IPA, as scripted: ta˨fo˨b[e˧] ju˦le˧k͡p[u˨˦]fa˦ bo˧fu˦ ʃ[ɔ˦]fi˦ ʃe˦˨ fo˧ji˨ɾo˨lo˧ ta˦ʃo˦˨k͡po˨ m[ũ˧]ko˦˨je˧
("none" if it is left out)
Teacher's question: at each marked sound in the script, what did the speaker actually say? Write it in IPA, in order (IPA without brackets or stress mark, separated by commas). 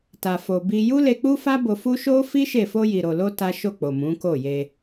i˧, u˦, o˦, ũ˨˦